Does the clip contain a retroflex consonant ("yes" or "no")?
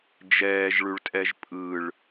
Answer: yes